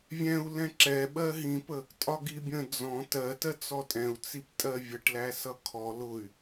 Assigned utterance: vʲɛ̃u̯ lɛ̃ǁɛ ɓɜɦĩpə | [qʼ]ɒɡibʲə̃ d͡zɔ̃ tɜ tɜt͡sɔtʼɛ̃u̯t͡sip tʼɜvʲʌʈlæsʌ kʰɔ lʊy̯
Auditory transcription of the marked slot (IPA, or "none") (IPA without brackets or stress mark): tʼ